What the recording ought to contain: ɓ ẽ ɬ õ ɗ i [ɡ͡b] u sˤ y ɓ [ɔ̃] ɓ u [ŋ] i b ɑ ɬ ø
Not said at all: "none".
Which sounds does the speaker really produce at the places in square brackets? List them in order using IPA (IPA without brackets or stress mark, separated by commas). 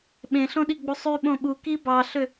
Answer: ɡ͡b, õ, k